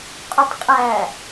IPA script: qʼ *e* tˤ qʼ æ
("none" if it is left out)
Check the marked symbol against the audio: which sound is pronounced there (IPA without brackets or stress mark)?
ø